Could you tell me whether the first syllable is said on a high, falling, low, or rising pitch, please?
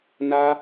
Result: high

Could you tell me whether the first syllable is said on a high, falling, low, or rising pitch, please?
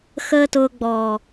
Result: high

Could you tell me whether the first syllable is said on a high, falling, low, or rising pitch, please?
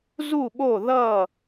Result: falling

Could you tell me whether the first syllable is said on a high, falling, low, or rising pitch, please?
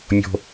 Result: high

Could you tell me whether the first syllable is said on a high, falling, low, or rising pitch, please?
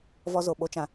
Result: high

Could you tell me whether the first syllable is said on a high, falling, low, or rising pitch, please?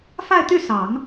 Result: falling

